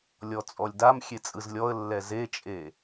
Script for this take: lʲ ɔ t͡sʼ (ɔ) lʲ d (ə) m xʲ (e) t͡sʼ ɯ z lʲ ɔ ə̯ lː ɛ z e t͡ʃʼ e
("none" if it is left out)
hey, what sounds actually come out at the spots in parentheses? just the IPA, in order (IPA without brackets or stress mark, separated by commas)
ɔ, a, e